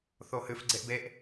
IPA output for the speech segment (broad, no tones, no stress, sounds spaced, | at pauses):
θ o h ɨ f ɡ͡ǀ e ʔ b e ʔ